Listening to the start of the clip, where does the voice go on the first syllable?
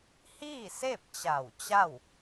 falling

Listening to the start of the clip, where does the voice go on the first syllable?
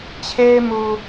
high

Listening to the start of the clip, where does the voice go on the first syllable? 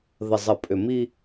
low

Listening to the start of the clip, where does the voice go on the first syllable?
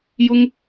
high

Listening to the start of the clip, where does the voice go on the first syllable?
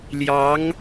rising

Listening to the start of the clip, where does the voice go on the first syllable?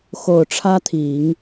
low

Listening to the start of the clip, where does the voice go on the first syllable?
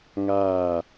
falling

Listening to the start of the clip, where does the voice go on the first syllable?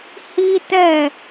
high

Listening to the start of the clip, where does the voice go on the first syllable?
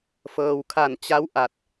low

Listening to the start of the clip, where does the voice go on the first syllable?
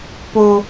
low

